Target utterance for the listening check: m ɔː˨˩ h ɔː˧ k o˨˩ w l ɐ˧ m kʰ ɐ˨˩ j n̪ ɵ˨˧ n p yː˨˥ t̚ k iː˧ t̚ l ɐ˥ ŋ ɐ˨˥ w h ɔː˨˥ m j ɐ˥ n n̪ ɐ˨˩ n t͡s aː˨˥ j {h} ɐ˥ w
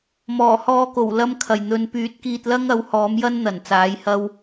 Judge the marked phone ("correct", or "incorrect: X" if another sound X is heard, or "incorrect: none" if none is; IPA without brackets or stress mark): correct